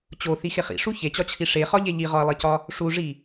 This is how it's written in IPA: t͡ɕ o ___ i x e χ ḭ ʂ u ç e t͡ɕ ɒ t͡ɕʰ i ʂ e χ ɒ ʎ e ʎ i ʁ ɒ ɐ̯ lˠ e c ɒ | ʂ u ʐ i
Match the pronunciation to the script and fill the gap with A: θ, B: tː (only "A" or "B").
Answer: A